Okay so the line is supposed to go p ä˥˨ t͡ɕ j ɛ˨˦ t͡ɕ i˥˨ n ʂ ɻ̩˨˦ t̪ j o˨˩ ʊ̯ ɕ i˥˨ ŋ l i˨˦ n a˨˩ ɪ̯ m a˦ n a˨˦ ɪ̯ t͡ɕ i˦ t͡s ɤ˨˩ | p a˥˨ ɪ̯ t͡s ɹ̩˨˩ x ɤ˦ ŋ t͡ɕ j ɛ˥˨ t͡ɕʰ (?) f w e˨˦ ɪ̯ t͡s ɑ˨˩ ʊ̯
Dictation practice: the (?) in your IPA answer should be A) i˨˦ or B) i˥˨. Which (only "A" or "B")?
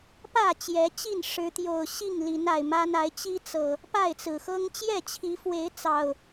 A